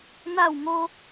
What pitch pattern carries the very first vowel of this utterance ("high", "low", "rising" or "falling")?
falling